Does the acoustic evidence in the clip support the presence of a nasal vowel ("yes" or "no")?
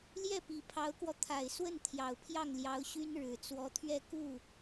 no